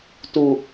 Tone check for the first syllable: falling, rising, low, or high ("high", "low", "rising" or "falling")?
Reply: low